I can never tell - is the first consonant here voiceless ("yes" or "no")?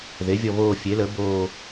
no